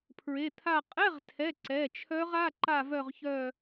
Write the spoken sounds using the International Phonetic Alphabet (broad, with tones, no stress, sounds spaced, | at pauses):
pʰ ɹ e˩˧˩ t̪ʰ a˦˨ qʼ ɛ˧˥˧ ʁ tʰ ɛ˩˧˩ ǀ ɛ˩˧˩ t͡ʃʰ œ˦˥ ʁ a˧˥˧ ǃ a˦˨ v œ˦˨ ʁ ç œ˦˨